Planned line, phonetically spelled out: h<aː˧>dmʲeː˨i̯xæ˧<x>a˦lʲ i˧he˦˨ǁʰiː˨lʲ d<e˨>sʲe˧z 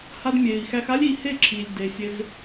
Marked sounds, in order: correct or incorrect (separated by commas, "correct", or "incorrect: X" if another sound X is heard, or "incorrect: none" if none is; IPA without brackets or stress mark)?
incorrect: a˧, correct, correct